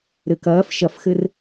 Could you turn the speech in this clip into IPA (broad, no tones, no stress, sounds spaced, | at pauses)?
ɾ ɘ k ɐː f ʃ ɐ f x ɘ r